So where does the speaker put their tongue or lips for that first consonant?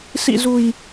tongue tip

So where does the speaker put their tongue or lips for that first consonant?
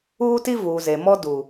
tongue tip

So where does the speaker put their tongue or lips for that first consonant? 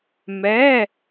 lips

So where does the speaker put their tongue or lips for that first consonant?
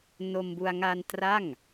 tongue tip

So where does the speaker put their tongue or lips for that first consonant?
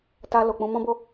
tongue tip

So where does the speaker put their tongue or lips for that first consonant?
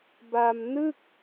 lips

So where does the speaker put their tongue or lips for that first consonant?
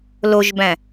tongue tip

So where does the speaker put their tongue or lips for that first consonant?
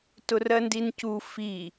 tongue tip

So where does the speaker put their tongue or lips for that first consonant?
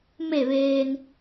lips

